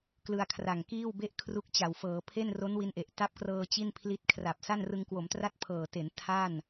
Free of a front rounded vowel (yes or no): yes